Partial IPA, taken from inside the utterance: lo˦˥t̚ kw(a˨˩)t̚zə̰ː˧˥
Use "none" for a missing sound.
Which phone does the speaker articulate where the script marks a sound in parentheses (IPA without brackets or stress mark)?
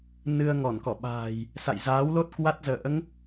a˦˥